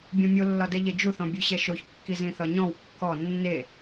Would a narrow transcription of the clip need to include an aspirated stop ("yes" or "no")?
no